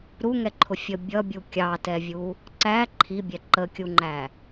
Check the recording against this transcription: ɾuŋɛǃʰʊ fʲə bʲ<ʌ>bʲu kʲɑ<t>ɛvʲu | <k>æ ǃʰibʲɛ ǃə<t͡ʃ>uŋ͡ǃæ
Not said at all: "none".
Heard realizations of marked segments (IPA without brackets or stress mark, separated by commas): ʌ, t, ǀ, kʲ